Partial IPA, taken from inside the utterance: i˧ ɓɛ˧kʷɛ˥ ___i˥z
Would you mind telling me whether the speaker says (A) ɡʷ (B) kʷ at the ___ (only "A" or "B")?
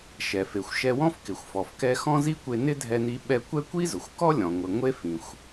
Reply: B